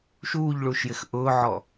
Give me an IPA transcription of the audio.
ʃ uː ʎ ɭ uː ʃ j ɪ x ʔ ʊː ʕ ɔ

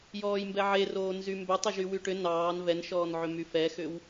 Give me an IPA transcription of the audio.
j ɔː j m b ɛ ʕ e r oː n z y m b ʏ tˤ ʏ ʒ y w y ʈ ʏ n ɑː n v ɛ n ʃ ɔː n ʕ ʏ m y f ɛ x ʏ w

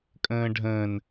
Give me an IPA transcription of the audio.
kʼ ə̃ː ɖʱ ə̃ː n

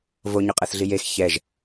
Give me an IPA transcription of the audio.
v o ɲ ø qʼ ɜ θ ɮ i j e x ç ɛ ʒ

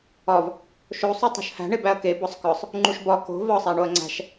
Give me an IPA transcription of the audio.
ɒ v | ʃ o sˤ u tˤ o̤ ʃ h æ̤ ɳ e b æ ɐ̯ k e b ɒ sˤ k ɒ sˤ | ŋ͡ǃ u ʃ b ɒ k o̤ v ɒ sˤ æ ɳ o ɐ̯ ŋ͡ǀ æ̤ ʃ

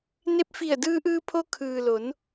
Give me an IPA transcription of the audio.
n e˧ p̚ f i˧˩ ə̯ d ɯː˧ ʔ ɯː˧ pʰ o˧ kʰ ɯː˩ l o˩˧ n

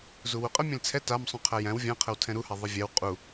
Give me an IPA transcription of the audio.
z u w u qʼ ə mʲ ɛ̃ l t͡sʰ ɛ t a m sˤ ũ qʰ æ j æ̃ w vʲ ã qʰ ə w tʰ ɛ̃ ɾ u h a ðˤ ə vʲ æ w qʼ u

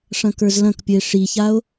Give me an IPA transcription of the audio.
ʂ ɐ̃ k ə˞ z l ɐ̃ k pʲ ə e̯ ʂ i ç a o̯

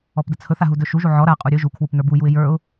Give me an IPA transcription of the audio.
ɔ p d ə t͡sʰ ɵ θ a ɦ u d ɵ ʃ u ʒ u ʕ ɔ ɾ a qʼ u ɾʲ ɵ ʒ u kʰ w u p n ə˞ b u j u ɪ̯ j ə˞ ʊ̯

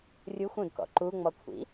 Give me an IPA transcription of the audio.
rʲ u xʷ ũ d k ɔ̰ ǃ u ŋ͡m ɔ kʷʰ ḭ

